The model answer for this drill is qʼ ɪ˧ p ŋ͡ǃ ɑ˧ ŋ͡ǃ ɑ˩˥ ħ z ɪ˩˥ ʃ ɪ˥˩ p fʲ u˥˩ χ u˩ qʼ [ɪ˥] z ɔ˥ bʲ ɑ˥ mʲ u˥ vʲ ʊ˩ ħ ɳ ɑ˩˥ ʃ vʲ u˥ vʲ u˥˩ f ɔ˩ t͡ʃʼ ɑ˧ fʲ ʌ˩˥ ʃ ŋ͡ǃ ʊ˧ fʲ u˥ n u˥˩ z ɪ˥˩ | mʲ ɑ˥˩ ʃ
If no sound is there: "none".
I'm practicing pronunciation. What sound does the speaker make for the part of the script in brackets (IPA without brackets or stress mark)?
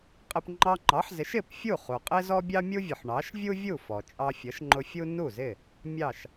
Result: ɪ˥